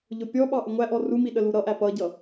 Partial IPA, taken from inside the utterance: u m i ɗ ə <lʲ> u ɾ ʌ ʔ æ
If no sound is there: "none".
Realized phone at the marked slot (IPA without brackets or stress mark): l